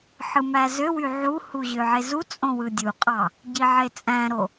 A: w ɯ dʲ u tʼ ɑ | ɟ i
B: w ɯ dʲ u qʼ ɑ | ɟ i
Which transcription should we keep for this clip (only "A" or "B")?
B